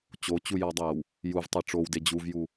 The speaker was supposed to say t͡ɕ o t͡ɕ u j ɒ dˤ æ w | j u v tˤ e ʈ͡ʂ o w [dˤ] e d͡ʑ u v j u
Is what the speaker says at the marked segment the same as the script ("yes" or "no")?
no